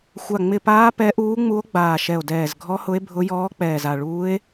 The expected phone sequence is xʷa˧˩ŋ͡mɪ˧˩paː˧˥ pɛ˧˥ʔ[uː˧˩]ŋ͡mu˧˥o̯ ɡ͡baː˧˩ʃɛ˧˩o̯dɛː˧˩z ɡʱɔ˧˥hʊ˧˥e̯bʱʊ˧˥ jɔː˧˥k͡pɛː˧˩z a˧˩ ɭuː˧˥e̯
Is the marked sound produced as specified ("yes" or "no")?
no